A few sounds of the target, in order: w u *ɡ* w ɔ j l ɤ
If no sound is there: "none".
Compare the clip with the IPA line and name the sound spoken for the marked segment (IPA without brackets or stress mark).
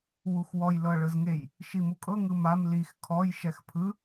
x